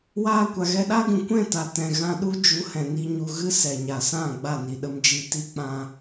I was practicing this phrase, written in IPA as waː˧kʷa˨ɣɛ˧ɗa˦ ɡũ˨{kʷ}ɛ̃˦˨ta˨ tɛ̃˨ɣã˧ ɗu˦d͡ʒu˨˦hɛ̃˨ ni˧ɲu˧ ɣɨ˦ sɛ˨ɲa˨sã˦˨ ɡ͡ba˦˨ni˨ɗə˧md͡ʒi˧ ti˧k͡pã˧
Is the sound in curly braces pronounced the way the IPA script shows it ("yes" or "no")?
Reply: yes